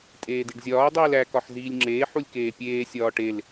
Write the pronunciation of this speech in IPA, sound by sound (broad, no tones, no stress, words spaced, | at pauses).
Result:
tʼeːdiɖzʲɒː dˤiːlæ kɒħziːlʲŋ͡ǁeː ħulʲkeːpʲeː sʲɒːʈel